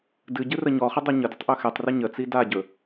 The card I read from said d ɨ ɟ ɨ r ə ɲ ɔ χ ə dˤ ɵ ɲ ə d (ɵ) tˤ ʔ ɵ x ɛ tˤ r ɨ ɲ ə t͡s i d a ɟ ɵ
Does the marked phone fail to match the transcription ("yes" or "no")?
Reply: yes